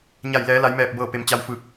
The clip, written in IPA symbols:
ɲ a˧˩ j l ɛː˩˧ l a˩˧ j m ɛː˧˩ p̚ b ɤː˧˩ p e˩ m t͡ɕ a˧ w f ɯː˧˩ k̚

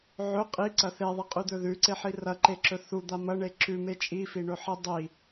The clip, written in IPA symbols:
ʕ ɵ qʼ i ǀ ɐ θ e ðˤ i qʼ ʉ d̪ ɵ ð ʉ ǀ e ħ i r ɐ ǃ e ǁ ɵ θ u d̪ a m ɐ ɳ e ǁ ʉ m e t͡ʃʼ i f i ɳ ɵ ħ i dˤ i

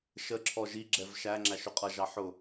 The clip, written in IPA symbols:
ʃ ə ǁʰ ɔ ʒ i ɡ͡ǁ ɛ v ʃ æ ŋ͡ǁ æ ʃ ʊ qʼ ʌ ʒ ɑ ħ ʊ

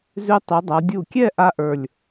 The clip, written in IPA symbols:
z ʉ˧ tˤ ʉ˩˧ dˤ a˩˧ dʲ u˧˩ kʲ ɛ˥˧ ʔ a˥ ʔ ə˞˧˩ lʲ

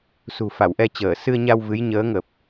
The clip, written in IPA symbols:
s ṳ˨˩ f a˧˩ w ʔ ɛ˧ t͡ɕ əː˧˩ s ɨ˧ ə̯ ɲ a˧ w v ɨ˨˦ j ɲ əː˨˦ ŋ ə˨˩ p̚

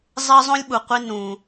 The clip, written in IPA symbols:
zˤ ɪː˥ zˤ õ˥ lʲ ɓ u˩ qʷ i˥ n ũː˩

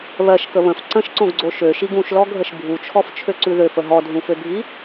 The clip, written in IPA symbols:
β ɜ ʃ k ə β ə̃ f ǀ ə̃ ʃ ǀ õ ɡ ɡ͡ǀ o ʃ ø ʃ i ɡ ũ ʃ l ɔ ɡʱ ə ʃ bʱ u t͡ʃʰ ɔ f t͡ʃʰ ø ǀ ʉ ð ø f ə ɦ ɔ dʱ ũ f ø bʱ i

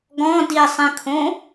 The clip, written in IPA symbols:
ɡ ɔ̃ d i sˤ ĩ kʰ õ

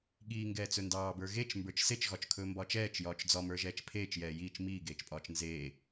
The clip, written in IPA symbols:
ɠ iː ŋ ɡ ɛː t͡s ɵ n d ɑː b ə˞ ɣ e t͡ʃ m b ə˞ t͡ʃ s e t͡ʃ ɣ ɒ t͡ʃ kʰ ɵː m b ɒː t͡ʃ ɛː t͡ʃ j ɒː t͡ʃ d͡z ɒ m ə˞ ʒ ɛː t͡ʃ pʰ eː t͡ʃ j ɛː j iː t͡ʃ m iː ɡ eː t͡ʃ pʼ ɒː t͡ʃ n z eː

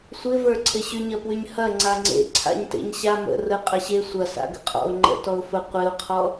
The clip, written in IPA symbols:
sʷ ɪ v ə˞ ǀʰ ɪ ɕ y ɲ ɐ p w y ɲ h ɐ ŋ͡ǀ a ŋ͡ǀ ḛ ǀʰ a̰ ɲ t ḛ ɲ ɕ a m ə̰ r ə qʼ ɐ ɕ e sʷ ɐ s a̰ ɡ ə̰ qʼ ɔ̰ ʊ̯ ŋ͡ǃ ə̰ t ɔ ʊ̯ f ə qʷ ɪ ʊ̯ qʰ ɔ

